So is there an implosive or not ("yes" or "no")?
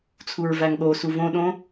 yes